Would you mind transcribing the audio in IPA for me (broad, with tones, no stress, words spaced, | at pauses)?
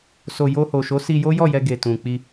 so˨ jo˧ ho˨ʃo˨˦si˧ jo˦jɔ˦˨jɛ˧ɡe˨ tũ˨k͡pi˧